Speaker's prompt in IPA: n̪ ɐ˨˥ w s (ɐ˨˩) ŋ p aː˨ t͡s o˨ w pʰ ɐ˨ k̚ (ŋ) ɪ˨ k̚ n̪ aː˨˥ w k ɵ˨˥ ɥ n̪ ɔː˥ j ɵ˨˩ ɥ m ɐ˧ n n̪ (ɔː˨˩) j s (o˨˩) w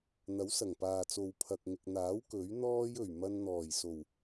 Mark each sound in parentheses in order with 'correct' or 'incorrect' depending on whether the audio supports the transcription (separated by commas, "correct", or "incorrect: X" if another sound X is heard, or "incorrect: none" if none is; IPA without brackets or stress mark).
correct, correct, correct, correct